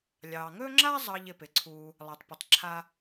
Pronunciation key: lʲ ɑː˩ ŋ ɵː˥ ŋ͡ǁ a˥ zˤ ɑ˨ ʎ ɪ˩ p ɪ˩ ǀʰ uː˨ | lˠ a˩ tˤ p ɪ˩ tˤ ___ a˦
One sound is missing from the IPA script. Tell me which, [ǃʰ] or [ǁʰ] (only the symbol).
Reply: ǁʰ